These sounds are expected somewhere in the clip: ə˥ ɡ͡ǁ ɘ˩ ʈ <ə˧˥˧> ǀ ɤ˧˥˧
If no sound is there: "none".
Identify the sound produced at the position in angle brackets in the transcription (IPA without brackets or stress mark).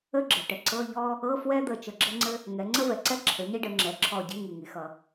ə˩